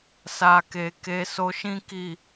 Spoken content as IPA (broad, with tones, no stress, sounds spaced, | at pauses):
s a˨ k e˨ k e˧ s o˧ ʃ ĩ˦ k i˦˨